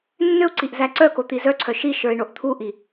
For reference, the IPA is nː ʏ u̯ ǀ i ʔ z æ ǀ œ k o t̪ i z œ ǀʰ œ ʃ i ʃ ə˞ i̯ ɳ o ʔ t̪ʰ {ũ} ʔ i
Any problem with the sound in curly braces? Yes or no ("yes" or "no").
yes